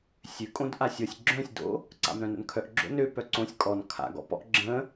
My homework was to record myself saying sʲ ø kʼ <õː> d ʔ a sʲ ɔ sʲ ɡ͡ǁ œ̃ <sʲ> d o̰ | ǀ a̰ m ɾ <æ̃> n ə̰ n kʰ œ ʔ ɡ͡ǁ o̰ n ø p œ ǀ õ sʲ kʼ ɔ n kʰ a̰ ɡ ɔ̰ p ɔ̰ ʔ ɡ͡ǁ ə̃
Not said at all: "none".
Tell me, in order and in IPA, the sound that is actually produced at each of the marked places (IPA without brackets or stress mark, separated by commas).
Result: õ, sʲ, œ̃